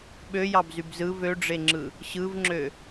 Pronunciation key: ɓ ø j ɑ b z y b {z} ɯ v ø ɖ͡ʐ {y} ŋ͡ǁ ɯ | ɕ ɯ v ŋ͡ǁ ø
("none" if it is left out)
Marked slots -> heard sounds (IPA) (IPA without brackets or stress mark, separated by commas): z, e